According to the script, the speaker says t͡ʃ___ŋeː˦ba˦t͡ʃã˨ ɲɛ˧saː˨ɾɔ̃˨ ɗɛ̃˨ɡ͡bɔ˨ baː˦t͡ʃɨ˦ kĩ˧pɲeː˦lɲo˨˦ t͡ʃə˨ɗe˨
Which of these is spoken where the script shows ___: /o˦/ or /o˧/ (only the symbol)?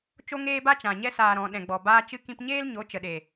o˦